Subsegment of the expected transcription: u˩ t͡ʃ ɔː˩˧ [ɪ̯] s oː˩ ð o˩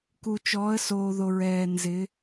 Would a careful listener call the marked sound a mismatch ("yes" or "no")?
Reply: yes